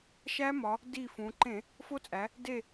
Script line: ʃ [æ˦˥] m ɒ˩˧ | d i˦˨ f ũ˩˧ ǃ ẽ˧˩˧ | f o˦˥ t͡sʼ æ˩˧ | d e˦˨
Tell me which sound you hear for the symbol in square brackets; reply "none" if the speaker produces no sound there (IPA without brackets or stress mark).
æ˦˥